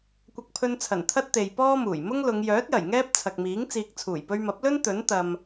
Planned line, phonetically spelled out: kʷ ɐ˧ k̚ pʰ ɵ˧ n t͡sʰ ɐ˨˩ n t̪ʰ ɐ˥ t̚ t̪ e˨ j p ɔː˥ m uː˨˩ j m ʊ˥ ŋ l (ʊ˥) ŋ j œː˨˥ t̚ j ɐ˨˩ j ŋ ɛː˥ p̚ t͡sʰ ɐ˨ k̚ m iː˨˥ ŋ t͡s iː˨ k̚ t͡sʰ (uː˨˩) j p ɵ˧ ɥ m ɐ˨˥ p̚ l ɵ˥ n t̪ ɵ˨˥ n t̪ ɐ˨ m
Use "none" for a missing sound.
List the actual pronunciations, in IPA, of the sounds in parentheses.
ʊ˨˧, uː˨˩

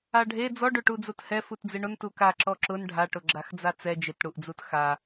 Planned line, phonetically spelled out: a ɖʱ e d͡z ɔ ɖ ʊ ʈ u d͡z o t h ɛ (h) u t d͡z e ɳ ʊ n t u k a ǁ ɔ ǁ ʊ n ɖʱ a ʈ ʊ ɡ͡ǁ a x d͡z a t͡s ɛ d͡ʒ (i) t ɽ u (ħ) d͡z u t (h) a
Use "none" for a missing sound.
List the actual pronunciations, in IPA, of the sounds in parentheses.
f, ɪ, ʔ, x

